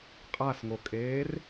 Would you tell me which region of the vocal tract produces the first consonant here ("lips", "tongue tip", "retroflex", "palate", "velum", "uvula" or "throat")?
uvula